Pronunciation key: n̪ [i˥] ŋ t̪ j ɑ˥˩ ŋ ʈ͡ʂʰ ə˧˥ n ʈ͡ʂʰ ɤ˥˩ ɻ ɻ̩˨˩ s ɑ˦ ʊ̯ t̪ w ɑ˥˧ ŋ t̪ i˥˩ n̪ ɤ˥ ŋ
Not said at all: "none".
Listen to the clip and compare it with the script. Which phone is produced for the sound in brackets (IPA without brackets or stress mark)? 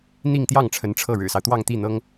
i˥˧